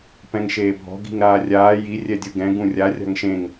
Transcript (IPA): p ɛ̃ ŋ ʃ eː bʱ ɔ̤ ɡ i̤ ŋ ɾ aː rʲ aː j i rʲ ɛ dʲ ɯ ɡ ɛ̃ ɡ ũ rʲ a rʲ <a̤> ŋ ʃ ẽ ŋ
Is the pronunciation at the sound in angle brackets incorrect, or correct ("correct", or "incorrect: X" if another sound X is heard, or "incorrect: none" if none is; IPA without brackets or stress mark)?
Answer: correct